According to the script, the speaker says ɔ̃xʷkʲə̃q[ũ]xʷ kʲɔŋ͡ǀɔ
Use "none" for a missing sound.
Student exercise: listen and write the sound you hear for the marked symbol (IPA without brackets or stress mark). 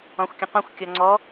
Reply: ũ